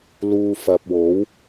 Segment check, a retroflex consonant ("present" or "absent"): absent